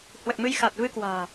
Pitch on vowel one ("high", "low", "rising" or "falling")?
low